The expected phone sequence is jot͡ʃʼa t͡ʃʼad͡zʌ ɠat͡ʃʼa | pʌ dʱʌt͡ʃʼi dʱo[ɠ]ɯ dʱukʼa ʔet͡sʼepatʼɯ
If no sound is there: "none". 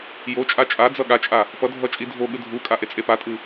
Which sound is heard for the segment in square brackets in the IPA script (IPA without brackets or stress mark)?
ɠ